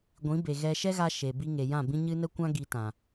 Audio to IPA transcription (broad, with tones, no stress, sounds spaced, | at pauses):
ɡʷ ĩ˨˦ b e˨ ɣ ɛ˧ ʃ ɛ˦ ɣ a˧ ʃ e˨ b i˧ ŋ e˨ j ã˦˨ b ĩ˦ ɲ ɨ˦ n ə˦ kʷ ã˦ ɡ i˧ t ã˨